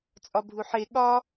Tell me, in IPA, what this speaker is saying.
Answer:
t͡sʼɒbʱuħe ɠɒ

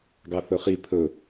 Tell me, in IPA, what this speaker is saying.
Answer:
ɡɑθɵχi pʰɵ

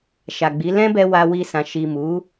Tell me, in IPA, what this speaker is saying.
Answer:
ʃa˨ɡ͡bi˨˦ lɛ̃˦bɛ˧ wa˧wi˧sã˨ ʃi˨mu˨˦

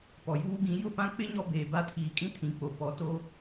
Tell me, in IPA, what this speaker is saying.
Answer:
pɔ˨juː˦ɡĩ˨˦ jʊ˦˨pã˦k͡pɪ˦ ɲɔ˦beː˨ba˦ tʰiː˨kʼĩ˦ tʰĩ˨k͡po˨ pɔ˨˦ to˦

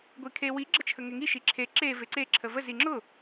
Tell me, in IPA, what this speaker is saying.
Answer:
ɡʷikʰe wi ɡ͡ǁət͡ʃʰəŋeŋi ʃiǁʰe ǁe veǀe ǁʰəvə ziŋ͡ǁʊ

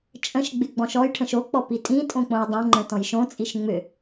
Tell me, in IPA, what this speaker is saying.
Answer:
t͡ʃʼə̃ʃɡ͡bɪ ɡ͡bɔ̃ʃɔjʈʰə̃ʃ ok͡pɔ pitʼĩtʼõ k͡põjdˤõŋ͡ǃə̃ tɔ̃jʃõt͡sʼiʃ ŋ͡mʏ

